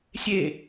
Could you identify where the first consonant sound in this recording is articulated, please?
alveolar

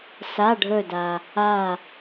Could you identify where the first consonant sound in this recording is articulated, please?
alveolar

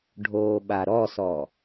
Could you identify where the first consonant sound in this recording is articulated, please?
retroflex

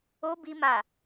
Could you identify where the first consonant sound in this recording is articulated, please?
labial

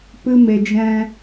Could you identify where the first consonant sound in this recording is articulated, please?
labial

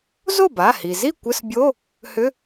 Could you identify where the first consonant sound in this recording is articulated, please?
alveolar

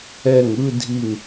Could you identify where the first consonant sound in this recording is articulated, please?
velar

